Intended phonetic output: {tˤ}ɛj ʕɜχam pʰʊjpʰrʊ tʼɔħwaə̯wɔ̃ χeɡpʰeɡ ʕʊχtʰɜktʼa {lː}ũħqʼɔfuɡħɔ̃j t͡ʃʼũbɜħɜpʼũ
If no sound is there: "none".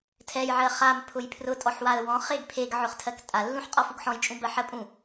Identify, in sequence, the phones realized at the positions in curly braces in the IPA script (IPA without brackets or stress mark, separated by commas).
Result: tʰ, lː